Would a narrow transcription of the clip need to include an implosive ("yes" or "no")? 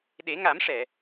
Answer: yes